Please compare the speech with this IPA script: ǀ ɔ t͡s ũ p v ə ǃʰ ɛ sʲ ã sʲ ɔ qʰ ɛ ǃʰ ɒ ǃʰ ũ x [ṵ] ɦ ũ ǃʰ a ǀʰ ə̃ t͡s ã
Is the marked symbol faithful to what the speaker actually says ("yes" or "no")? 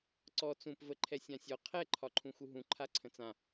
no